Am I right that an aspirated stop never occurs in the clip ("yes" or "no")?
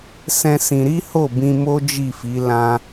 yes